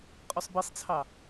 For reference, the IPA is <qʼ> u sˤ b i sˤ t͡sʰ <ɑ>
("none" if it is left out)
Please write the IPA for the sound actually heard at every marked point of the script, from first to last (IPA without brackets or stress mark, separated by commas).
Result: qʼ, ɑ